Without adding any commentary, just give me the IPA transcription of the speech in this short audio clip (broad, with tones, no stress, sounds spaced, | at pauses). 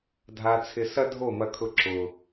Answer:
dʱ a˧ t͡sʰ ɪ˧ s ɐ˦ dʱ o˦˨ m ɐ˧ kʰ ʊ˧ ǁ ʊ˨